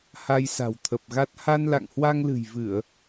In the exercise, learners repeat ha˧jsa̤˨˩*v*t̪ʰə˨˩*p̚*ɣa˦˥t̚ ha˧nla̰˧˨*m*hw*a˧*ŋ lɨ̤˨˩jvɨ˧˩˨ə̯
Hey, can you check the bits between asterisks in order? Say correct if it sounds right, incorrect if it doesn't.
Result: incorrect: w, correct, incorrect: ŋ, correct

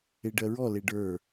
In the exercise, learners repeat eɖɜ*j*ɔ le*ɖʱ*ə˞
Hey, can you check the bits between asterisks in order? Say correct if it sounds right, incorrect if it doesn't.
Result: incorrect: ɹ, incorrect: ɖ

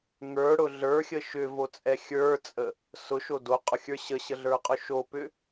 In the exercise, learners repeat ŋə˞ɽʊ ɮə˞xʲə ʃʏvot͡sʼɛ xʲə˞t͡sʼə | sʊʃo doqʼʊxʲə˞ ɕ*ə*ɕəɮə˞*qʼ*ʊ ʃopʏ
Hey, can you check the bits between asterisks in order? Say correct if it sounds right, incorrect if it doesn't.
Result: correct, correct

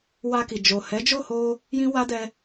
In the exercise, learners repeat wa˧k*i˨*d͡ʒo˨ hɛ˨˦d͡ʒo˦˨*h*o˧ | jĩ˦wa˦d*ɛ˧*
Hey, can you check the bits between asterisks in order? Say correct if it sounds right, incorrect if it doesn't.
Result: correct, correct, correct

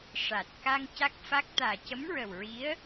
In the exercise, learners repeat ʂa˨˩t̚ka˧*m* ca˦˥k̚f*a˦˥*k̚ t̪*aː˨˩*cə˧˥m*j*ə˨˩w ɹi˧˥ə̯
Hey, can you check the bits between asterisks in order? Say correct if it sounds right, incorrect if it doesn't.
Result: incorrect: ŋ, correct, correct, incorrect: ɹ

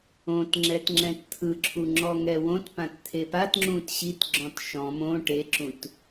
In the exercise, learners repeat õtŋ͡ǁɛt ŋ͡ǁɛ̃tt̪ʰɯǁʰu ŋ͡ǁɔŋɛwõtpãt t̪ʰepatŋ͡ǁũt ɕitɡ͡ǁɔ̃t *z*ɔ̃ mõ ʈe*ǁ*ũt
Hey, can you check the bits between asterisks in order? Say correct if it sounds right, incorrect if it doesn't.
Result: incorrect: ʃ, correct

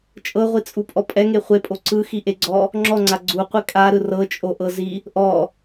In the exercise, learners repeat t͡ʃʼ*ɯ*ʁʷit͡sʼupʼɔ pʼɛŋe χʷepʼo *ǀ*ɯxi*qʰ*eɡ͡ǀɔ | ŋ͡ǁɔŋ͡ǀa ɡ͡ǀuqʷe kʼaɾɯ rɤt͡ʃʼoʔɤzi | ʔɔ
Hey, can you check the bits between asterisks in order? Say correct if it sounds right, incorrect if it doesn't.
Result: incorrect: ɤ, correct, incorrect: ʔ

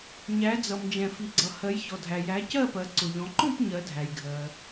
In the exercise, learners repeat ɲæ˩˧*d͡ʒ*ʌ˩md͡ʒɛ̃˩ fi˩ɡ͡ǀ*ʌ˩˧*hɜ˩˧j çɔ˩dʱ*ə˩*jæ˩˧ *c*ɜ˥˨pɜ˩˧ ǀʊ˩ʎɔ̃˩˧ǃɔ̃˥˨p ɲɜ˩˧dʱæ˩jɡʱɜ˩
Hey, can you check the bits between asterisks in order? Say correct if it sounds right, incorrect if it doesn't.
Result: incorrect: d͡z, incorrect: ʌ˩, incorrect: æ˩, correct

